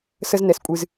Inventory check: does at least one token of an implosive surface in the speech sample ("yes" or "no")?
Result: no